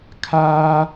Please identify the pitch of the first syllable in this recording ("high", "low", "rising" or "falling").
high